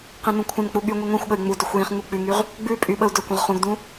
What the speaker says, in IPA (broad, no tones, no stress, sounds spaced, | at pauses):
q ĩ n ũ kʷʰ ə̃ n k͡p u ɠ y ŋʷ i ŋʷ ĩ xʷ ɠ ə y̯ ŋ͡m u d ɵ xʷ j ĩ χ ŋ u k͡p ʉ ŋ y ʁ | ɡ͡b ʉ pʼ y ɓ ə u̯ d ɵ kʷ ə̃ ʁ χ ũ ɡ d ũ